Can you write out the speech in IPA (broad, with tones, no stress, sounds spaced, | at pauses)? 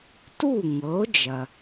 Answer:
t u˥˩ ŋ ɤ˩˥ o̯ d͡ʒ ɐ˩